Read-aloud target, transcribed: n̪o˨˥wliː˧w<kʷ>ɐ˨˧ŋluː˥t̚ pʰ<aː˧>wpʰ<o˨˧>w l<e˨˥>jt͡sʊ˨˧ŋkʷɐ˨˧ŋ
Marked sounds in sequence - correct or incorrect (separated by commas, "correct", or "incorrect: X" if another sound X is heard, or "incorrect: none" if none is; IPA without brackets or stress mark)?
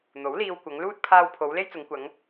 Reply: correct, correct, correct, incorrect: e˥